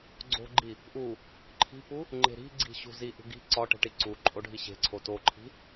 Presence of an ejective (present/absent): present